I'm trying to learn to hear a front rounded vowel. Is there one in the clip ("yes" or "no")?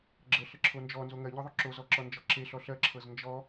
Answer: no